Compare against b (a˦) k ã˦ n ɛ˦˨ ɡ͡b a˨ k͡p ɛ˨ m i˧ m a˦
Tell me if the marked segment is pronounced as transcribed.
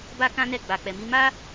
yes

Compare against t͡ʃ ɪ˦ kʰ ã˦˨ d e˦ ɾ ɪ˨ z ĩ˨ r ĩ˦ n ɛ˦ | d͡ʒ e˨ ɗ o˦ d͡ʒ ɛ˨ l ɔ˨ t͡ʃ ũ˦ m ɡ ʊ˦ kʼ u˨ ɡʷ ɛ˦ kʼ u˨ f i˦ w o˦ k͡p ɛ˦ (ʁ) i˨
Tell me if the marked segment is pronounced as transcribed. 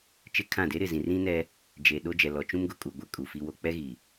no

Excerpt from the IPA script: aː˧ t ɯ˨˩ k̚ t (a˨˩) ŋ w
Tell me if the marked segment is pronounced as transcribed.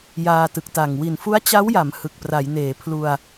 yes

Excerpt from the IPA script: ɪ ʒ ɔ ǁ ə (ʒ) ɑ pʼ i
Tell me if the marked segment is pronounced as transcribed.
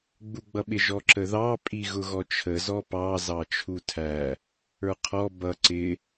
no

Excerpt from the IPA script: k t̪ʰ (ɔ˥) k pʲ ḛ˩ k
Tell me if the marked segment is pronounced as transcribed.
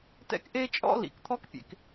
yes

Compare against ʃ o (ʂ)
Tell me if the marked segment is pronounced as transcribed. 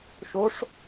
yes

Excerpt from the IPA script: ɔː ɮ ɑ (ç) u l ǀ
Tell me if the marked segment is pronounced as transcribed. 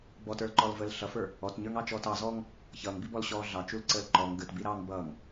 no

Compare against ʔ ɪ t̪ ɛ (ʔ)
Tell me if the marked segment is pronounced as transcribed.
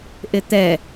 no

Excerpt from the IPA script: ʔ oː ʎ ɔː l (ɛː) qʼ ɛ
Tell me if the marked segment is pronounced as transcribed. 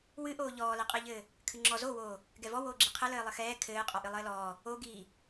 no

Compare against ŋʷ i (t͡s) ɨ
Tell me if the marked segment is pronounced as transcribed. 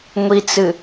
yes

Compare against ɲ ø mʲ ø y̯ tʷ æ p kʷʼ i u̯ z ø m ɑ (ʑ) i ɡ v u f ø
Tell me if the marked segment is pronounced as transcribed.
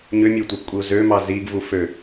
no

